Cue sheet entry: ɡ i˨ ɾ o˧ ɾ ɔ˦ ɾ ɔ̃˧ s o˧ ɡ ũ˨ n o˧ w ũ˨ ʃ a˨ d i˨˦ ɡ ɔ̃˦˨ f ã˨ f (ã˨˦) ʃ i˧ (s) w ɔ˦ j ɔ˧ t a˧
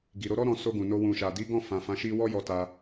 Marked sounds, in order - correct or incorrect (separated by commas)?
correct, incorrect